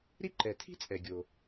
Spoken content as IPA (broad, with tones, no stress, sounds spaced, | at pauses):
ɾ i˥ ǃ ɛ˩ tʰ i̤˥ t͡sʼ ɛ˩ ɡʲ o˩